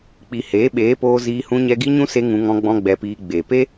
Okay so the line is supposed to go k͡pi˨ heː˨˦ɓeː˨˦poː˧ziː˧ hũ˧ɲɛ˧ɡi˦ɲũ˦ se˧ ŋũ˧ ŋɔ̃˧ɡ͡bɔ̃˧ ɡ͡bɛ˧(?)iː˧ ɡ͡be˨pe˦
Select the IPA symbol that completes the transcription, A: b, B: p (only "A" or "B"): B